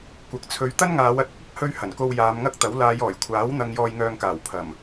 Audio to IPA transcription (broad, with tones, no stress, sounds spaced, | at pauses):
kʷ ɐ˨˥ k̚ t͡sʰ ɵ˧ ɥ t̪ ɐ˥ n ŋ aː˨˧ w ɐ˧ t̚ ʊ˨˥ k̚ ɐ˨˥ k̚ h ɵ˧ ɥ h ɐ˨˩ n k o˧ w j aː˨˧ m ŋ ɐ˥ k̚ t̪ ɐ˨˥ w l aː˨˧ j ɔː˨˩ j kʷʰ aː˨˥ w n̪ ɐ˧ ŋ j ɔː˧ j ŋ œː˧ ŋ k aː˨˩ w pʰ ɐ˨˩ m